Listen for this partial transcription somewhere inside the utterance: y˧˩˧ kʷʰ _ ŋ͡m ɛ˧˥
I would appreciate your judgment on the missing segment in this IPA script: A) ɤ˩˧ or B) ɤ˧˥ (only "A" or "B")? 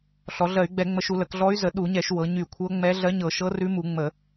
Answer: B